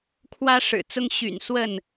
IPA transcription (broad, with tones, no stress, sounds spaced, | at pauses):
kʰ w ä˦ ʂ ɻ̩˨˩ t͡s ʊ˦ ŋ ɕ y̰˨˩ n s w ə˥˨ n